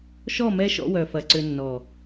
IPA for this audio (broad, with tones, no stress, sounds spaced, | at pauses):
ʃ ɔ˦˨ m ɛ˦ ʃ ɔ̰˦ w œ˨ f ɐ˨ ǀ ʏ˨ nː ɔ˨